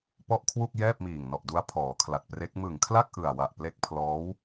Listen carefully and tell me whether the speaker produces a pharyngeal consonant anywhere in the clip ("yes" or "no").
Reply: no